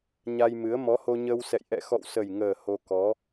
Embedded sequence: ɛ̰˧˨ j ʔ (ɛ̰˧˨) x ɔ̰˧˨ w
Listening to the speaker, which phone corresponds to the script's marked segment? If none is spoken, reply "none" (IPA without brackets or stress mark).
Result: ɛ̰˧˨